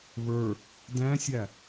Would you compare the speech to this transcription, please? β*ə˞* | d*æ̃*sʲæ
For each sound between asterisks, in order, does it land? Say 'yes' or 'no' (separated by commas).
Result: yes, yes